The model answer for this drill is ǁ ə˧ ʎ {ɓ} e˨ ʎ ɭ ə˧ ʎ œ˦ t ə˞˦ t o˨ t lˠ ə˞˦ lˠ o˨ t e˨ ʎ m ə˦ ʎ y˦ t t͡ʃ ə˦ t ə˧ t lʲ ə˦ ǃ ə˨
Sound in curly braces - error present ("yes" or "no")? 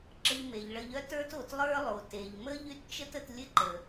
yes